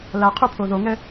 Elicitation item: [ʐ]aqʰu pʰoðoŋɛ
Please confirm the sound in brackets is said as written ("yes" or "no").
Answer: no